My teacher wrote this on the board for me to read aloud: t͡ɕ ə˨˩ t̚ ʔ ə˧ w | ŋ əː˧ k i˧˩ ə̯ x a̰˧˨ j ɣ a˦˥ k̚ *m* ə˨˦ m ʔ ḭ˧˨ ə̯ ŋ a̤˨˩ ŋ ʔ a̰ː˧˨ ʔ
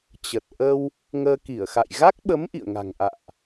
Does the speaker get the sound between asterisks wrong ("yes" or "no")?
yes